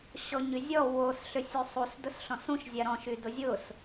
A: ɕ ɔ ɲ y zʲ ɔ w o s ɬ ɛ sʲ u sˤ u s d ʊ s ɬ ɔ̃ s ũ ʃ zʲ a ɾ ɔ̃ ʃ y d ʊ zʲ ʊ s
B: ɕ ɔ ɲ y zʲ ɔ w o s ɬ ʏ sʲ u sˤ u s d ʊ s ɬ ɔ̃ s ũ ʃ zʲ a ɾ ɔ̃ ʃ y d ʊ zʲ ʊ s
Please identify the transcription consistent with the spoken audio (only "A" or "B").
B